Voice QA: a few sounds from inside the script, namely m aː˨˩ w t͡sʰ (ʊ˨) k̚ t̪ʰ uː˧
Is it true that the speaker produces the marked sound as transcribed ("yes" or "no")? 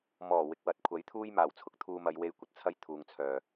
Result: no